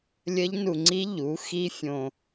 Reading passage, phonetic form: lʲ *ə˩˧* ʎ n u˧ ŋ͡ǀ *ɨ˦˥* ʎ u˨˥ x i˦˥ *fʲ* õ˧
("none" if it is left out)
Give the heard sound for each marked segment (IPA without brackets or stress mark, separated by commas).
ə˦˥, i˦˥, fʲ